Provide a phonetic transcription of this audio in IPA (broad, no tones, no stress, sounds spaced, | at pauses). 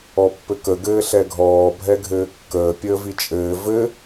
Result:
ɔ pː ɘ k ə ɡ ɘː ɬ ɛ ɡʱ ɔː bʱ ɛ ɡʱ ɘː kː əː pʲ əː v i t͡ʃʼ ɘː v ɘ